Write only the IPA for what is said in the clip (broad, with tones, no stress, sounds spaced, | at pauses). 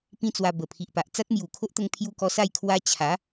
p ĩ˦ t͡s w a˧ b ə˨˩ pʰ i˨ ʔ p a˨ ʔ t͡s a˦ t̚ m j u˨˩ kʰ o˦ ʔ t̪ ə˧ ŋ pʰ j u˧ k ɔ˧ s a˥˧ j kʰ w a˦ t͡ɕʰ a˨˦